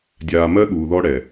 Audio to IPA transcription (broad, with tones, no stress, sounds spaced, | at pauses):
dʲ aː˨ m ɜ˦ ɠ uː˨ ð ɔ˦ ɽ ɛ˨